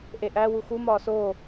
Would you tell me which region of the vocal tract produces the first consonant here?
throat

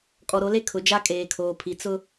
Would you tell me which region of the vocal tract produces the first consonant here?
velum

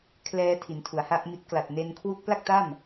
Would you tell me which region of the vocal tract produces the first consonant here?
velum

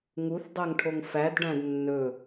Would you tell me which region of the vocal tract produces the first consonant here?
velum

